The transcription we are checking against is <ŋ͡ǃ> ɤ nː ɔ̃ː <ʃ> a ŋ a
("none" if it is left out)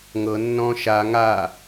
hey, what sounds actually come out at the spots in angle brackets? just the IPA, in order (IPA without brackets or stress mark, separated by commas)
ŋ, ʃ